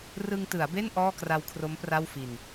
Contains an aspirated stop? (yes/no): yes